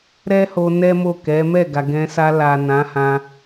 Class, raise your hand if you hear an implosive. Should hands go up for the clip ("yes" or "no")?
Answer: no